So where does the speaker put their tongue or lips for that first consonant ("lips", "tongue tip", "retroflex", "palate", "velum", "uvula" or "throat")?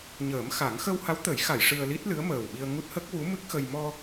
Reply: palate